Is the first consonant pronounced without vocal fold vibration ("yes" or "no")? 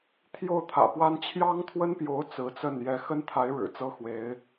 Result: yes